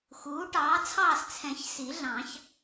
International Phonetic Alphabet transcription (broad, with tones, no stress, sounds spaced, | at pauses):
x uː˨˥ ʈ ɑː˨˥ t͡sʰ ɑː˦˨ s t͡sʰ ɛ̃˨˩˦ ç s i˨˩˦ ɮ ɑ̃˨˩˦ ç